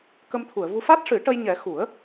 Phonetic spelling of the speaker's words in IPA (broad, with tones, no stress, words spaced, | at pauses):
kə˧mt̪ʰu˨˩˨ə̯vu˧ fa˦˥t̚ʂɨ˨˩˦ʈə˧j ɲɛ˨˩˦ xu˨˩˦ə̯